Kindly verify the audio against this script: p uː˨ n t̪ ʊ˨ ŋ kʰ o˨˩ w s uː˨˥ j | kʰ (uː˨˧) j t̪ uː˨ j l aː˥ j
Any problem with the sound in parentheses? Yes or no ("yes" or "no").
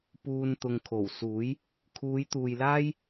no